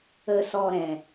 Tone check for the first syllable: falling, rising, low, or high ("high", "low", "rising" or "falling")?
low